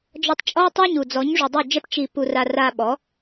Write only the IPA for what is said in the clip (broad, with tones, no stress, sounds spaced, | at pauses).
d͡ʒ ɔ˧ tˤ t͡ʃʼ ɔ˦ w tˤ a˦ ɲ u˨ d͡z ɔ˨˦ ɲ ʐ u˨ dˤ u˦˨ d͡ʒ ɛ˦ p t͡ʃ i˧ p u˧ r a˧ r a˧ ɓ ɔ˨˦